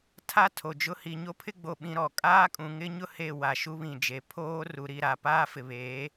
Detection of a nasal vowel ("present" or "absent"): present